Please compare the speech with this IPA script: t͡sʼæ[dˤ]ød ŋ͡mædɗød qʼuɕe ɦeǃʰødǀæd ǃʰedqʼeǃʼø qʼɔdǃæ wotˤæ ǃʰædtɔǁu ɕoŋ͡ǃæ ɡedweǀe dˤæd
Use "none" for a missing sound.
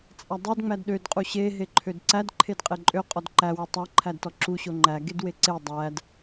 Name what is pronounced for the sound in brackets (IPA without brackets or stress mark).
dˤ